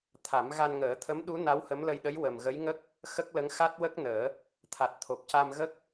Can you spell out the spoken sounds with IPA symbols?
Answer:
t̪ʰ a˨˩˦ m ɣ a˧ n ŋ əː˨˩˦ t̪ʰ ə˧˥ m ɗ u˧˥ n a˧˥ w h ə˧˥ m l ə˧ j ɗ ə˧˥ j w ə˨˩ m ɣ ə˧˥ j ŋ ə˦˥ k̚ | x ə˦˥ k̚ l ə˧˥ ŋ x a˦˥ t̚ w ə˦˥ k̚ n əː˨˩˦ | t̪ʰ a˨˩ t̚ t̪ʰ o˨˩ p̚ c a˧ m ɣ ə˦˥ k̚

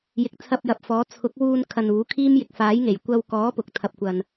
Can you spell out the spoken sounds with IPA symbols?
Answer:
j ɪ˨˥ k̚ t͡sʰ ɐ˧ p̚ j ɐ˨ p̚ f ɔː˨˥ t͡sʰ ʊ˨˥ k̚ w uː˧ n kʰ ɐ˨ n uː˨˥ kʰ iː˥ m j ɪ˨ k̚ f aː˨˥ j ŋ e˨˩ j kʷ ɐ˧ w k ɔː˨˥ p ʊ˨˥ k̚ t̪ʰ ɐ˧ p̚ kʷ ɐ˧ n

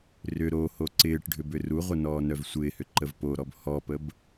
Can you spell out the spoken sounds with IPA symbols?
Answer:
r ʏ ɾ o h o ǀ ɪː ʈ ɖʱ ʏ b ʏ r u ʁʷ ə n ɔː n œ v sʷ ɪː h ʏ ǃ ə v p o ɾ ɔ b h ɔ p ə b

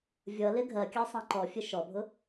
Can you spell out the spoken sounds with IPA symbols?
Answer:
vʲ ʌ l ɪ ɡʱ ɜ kʲ ɑ sˤ ɑ̃ ǃ ɔ fʲ ə ʃ ɔ bʱ ʊ

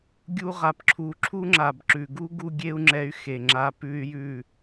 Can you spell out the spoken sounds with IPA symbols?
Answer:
ɡʲ u˦ ʁ a˨ p ǁʰ u˧ ǁʰ u˦ ŋ͡ǁ a˨ b ǁ ʉ˨ ɡ u˦ ɡ u˦ ɡʲ e˦ u̯ ŋ͡ǁ ɛ˧ y̯ x e˨ ŋ͡ǁ a˧ p ʉ˦ y̯ j ʉ˦˨

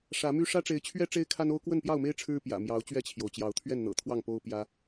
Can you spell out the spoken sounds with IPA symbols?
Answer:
ʂ ä˨˦ m y˦ ʂ ä˦ ʈ͡ʂ e˨˦ ɪ̯ t͡ɕʰ ɥ ɛ˦ ʈ͡ʂ e˦ ɪ̯ kʰ a˦ n o˦ ʊ̯ k w ə˥˨ n p j ɑ˥˨ ʊ̯ m e˦ ɪ̯ ʈ͡ʂʰ ɻ̩˦ p j ä̰˨˩ m j ɑ˨˦ ʊ̯ t͡ɕ ɥ ɛ˥˨ t͡ɕʰ j o˩ ʊ̯ t͡ɕ j ɑ˨˦ ʊ̯ t̪ʰ ɥ ɛ˥˨ n n̪ ɤ̰˨˩ t̪ʰ w ɑ˥˨ ŋ p o˦ ʊ̯ p j ä˦

